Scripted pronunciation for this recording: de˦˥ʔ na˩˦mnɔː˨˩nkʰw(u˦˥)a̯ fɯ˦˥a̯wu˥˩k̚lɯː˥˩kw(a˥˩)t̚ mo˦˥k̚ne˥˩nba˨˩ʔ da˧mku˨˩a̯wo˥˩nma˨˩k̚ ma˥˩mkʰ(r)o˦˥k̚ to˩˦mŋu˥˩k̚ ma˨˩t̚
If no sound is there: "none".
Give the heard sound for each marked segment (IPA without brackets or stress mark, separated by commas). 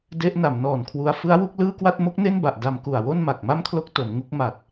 u˦˥, a˥˩, l